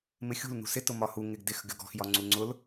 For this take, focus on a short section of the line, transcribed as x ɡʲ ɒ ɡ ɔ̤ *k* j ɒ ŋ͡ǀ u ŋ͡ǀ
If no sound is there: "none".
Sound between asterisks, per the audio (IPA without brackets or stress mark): x